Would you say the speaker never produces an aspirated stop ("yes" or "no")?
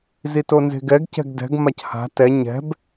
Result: yes